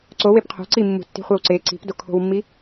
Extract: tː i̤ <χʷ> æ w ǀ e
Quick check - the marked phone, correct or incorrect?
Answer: correct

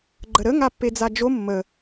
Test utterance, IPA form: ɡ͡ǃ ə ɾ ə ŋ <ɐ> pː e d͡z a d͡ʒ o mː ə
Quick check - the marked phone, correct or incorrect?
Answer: incorrect: a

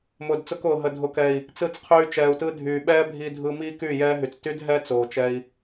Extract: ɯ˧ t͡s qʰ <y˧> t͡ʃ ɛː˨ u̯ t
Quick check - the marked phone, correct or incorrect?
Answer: incorrect: yː˧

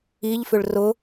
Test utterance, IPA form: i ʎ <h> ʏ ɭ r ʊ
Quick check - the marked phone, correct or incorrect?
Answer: incorrect: f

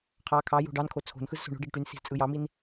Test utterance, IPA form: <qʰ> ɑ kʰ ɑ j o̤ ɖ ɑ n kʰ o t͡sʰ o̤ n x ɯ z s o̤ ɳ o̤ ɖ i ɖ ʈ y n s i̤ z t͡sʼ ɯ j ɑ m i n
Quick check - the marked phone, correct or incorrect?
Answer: correct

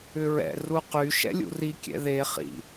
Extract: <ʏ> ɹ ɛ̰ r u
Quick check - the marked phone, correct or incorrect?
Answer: correct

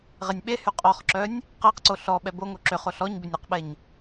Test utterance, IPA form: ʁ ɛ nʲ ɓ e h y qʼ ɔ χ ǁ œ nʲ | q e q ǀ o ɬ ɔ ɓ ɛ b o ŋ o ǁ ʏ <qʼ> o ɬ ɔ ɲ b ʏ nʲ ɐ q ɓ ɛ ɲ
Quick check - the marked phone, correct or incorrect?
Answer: incorrect: χ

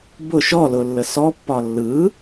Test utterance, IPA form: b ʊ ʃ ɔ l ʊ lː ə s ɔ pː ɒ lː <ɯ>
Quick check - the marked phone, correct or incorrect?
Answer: correct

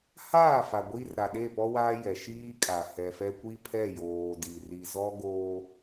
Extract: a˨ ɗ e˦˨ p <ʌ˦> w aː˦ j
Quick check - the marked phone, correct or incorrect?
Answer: incorrect: ɔ˦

